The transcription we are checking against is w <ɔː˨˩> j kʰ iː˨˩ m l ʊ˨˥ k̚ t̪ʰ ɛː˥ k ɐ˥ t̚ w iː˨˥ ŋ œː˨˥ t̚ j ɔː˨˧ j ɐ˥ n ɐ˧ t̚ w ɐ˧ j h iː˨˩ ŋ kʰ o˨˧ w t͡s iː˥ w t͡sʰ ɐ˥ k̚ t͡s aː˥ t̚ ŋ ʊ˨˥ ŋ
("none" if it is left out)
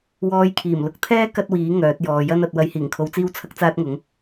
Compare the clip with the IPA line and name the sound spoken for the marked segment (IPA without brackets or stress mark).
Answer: ɔː˧